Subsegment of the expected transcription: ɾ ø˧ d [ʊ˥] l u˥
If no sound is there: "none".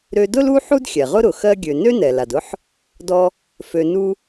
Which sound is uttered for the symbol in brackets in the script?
ʊ˥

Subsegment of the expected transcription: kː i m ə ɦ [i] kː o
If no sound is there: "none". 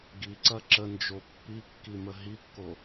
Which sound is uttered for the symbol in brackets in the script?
i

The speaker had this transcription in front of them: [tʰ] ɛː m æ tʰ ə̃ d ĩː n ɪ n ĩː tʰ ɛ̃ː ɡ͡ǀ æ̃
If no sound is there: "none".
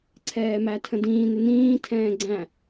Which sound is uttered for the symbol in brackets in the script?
ǀʰ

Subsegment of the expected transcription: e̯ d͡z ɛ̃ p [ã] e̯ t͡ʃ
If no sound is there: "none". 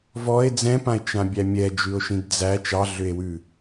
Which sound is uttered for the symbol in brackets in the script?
ã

